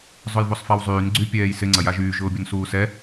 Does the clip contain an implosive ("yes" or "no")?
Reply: no